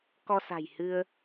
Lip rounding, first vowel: rounded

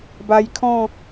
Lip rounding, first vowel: unrounded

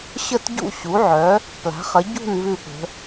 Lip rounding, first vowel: unrounded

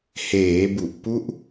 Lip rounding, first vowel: unrounded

